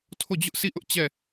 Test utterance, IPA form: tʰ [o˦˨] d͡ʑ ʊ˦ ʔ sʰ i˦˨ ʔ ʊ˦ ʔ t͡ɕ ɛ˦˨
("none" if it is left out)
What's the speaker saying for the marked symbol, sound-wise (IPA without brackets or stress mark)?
o˦˨